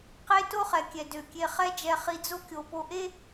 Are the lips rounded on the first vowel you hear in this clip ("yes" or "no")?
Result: no